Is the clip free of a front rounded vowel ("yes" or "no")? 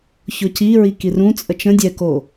yes